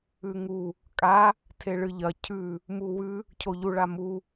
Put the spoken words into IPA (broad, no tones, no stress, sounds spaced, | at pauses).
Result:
ʉ ŋ u | kʼ a | tʰ e ɭ ɨ ʎ ɐ cʰ ʉ | m u w ʉ | cʰ o ʎ u ɭ a m u